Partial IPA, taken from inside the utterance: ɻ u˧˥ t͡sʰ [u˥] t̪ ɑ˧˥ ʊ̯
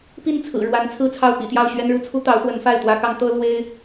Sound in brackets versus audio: correct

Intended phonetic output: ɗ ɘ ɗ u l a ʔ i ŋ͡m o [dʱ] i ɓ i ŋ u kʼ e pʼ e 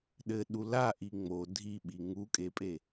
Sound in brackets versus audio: correct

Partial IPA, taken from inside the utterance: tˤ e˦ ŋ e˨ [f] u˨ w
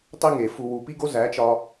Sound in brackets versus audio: correct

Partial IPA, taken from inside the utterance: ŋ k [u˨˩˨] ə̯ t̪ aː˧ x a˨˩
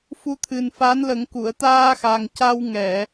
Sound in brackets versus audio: correct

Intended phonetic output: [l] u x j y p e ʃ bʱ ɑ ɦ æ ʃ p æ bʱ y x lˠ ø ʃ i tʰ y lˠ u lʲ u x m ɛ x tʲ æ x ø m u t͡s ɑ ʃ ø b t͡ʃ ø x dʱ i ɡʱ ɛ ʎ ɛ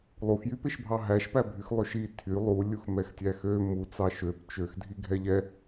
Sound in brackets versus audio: incorrect: lˠ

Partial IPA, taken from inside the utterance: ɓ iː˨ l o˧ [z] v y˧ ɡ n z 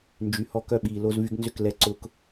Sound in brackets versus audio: correct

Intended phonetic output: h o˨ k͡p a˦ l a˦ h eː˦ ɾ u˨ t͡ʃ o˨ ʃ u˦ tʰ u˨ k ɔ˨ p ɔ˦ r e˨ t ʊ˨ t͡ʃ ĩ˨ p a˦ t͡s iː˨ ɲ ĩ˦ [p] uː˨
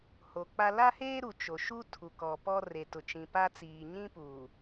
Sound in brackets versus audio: correct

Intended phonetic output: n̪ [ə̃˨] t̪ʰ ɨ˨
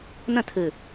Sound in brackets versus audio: incorrect: ə̃˦˨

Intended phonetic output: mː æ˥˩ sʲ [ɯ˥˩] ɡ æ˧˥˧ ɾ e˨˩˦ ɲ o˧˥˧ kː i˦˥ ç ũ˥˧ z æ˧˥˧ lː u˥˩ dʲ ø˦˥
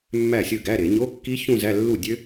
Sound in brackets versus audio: correct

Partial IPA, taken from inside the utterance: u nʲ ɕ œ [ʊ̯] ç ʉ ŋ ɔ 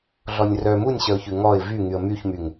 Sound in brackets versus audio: correct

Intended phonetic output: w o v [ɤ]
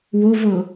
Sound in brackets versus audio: correct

